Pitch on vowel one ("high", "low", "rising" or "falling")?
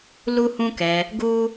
high